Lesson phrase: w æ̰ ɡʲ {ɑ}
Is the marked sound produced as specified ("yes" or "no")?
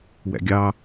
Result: yes